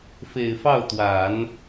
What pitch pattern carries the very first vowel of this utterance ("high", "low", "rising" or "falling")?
low